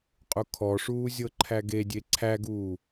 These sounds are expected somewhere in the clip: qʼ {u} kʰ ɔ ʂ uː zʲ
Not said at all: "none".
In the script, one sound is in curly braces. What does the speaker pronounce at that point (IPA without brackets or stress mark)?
u